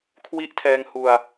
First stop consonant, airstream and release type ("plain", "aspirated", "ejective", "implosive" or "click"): aspirated